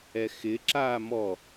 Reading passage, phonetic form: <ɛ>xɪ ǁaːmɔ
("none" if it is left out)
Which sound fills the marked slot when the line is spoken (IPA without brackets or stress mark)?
ɛ